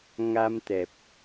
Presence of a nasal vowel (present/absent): absent